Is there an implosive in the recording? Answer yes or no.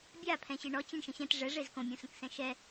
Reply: no